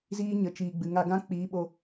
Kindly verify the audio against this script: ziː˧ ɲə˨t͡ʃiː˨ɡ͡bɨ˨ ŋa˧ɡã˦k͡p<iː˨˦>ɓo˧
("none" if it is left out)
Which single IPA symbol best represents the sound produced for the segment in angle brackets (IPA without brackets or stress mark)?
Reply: iː˨˦